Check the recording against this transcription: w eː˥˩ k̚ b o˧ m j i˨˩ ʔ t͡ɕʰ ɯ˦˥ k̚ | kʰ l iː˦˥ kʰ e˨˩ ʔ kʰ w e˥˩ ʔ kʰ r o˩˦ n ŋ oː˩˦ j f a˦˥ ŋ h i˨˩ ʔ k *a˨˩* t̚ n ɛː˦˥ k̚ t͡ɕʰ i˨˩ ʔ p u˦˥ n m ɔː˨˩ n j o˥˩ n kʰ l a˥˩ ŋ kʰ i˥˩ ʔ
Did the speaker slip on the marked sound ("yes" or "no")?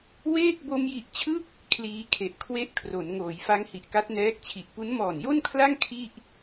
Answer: yes